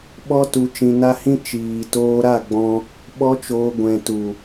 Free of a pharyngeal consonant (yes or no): yes